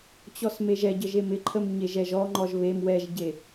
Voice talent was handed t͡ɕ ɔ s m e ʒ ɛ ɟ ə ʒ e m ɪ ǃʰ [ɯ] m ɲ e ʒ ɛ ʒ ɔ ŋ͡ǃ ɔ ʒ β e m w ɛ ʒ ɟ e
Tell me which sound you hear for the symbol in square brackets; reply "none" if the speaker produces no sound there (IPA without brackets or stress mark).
ə